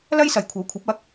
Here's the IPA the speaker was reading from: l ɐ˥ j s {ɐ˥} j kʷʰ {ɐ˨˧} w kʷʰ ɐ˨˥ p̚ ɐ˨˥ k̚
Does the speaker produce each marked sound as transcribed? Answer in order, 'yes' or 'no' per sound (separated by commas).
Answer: no, no